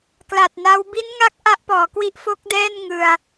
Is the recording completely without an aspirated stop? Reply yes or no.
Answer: yes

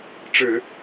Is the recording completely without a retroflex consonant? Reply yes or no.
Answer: no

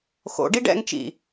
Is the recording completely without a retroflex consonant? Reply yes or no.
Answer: no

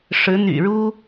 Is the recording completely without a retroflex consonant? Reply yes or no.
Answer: no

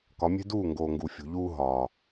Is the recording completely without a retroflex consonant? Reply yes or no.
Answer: yes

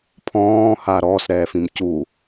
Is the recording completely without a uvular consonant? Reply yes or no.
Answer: yes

